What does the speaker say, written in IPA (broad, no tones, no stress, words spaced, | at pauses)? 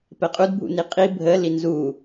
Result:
pɛqʼudbʱṵni qʼi bʱə linzu